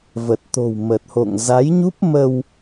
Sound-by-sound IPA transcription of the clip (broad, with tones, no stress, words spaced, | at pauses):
və˨˩t̚t̪o̤˨˩w mə˨˩t̚ho̰˧˨ŋza˨˦j ɲu˦˥p̚mə˧w